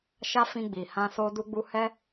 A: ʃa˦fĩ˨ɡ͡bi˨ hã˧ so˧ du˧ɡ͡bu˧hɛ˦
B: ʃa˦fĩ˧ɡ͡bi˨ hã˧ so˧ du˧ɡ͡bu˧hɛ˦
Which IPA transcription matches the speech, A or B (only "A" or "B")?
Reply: B